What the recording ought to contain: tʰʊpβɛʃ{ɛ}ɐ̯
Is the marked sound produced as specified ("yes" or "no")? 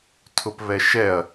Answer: yes